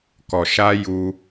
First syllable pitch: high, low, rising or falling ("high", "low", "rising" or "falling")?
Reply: low